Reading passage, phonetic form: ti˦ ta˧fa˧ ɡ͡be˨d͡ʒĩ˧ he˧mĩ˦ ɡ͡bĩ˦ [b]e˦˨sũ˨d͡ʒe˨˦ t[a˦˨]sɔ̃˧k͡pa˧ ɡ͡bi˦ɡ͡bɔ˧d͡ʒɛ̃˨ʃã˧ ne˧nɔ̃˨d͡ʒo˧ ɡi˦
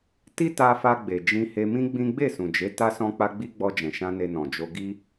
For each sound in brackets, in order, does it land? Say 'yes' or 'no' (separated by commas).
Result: no, no